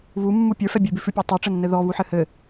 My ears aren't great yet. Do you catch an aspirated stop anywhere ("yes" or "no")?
no